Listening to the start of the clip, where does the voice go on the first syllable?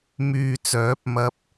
low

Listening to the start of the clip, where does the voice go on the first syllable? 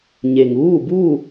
low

